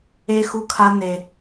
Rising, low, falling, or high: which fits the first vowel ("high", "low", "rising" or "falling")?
high